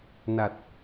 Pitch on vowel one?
low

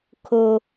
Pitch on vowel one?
high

